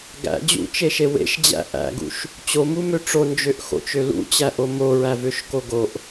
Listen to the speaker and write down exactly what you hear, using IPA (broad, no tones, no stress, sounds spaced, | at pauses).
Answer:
ɡ æ̰ d͡ʑ ṵ t͡ʃ e ʃ e w ḛ ʃ d͡ʑ æ̰ ʔ æ̰ ɡ ṵ ʃ | t͡ɕ o m u m ø ʈ͡ʂ o n d͡ʒ ø ʔ x o̰ t͡ʃ ø l ṵ t͡ɕ æ ʔ o m o ɹ æ v ø ʃ k o ɡ o ʔ